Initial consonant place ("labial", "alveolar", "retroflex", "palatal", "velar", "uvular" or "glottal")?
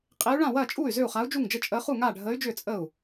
uvular